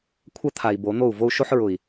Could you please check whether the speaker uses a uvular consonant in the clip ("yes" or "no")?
no